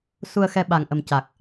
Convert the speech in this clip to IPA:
s u˧ ə̯ x ɛ˧ ɓ a˨˩ ŋ ʔ ə˨˩ m c a˨˩ k̚

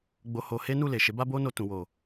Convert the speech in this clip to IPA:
ɡ͡b o˧ h o˧ h e˦ n u˦˨ l e˨ ʃ e˨˦ b a˦ b o˦ n o˧ t ũ˨ w o˨

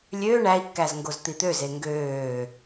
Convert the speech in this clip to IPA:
lʲ øː ɳ æ i̯ kː æ z ŋ ɡ o z t̪ i t̪ ø z e ŋ ɡ øː

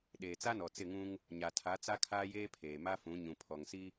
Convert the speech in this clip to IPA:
ɗ eː˨ t͡s a˦ n ɔ˨ t͡s ɪ˦˨ ŋ ũ˦ ŋ | ɲ a˨ tʰ a˨˦ t͡s a˦ kʰ aː˦ j eː˦ pʰ eː˨ m a˦ f ũ˨˦ ɲ ũ˨ pʰ ɔ˨ ŋ s i˦

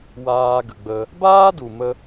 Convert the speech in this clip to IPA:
w aː˧ ɡ ə˨ ɡ͡b ə˧ | b aː˦ d u˨ m ə˦

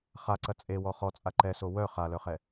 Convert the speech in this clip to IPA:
χ a ǀ ɐ t͡sʼ e w ɔ χ ɔ t͡sʼ a ǃ ɛ s o w œ χ a l œ χ ɛ

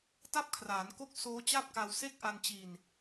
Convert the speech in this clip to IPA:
t a˥˩ p̚ kʰ r aː˩˦ n k o˥˩ k̚ s oː˦˥ t͡ɕ a˥˩ p̚ k a˧ w s e˦˥ k̚ ʔ a˧ n t͡ɕ i˧ n

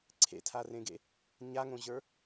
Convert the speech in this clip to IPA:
ǀʰ ḛ tʰ a r ẽ ɡ ḛ | ɲ a ŋ õ ʑ ə˞

